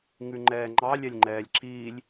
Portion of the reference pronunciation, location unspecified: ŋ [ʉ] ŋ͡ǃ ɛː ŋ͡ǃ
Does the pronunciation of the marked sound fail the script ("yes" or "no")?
no